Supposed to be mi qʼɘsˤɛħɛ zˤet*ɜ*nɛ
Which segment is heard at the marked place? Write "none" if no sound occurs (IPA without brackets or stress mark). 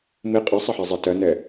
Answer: ɜ